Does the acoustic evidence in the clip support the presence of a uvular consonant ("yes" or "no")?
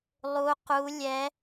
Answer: yes